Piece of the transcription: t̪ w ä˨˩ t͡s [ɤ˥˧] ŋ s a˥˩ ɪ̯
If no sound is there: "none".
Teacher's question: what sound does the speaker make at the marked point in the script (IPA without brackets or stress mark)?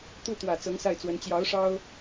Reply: ɤ˧˥